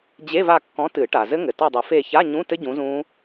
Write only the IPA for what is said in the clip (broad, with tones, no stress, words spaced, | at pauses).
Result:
d͡ʑe˧˥˧va˦˨kːɔ̃˨˥ tɨ˨˩˦ ʈa˩zɘ˦˥ŋɘ˩ tɔ˦˨dˤɨ˨˩˦fe˦˨ ça˧˥˧ɲũ˧˥˧tɘ˦˥ ɟũ˨˥zũ˦˥